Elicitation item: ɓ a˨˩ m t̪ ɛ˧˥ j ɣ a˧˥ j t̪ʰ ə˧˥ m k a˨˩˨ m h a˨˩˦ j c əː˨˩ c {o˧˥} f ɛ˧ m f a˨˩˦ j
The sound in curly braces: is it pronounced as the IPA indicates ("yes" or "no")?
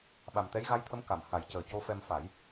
yes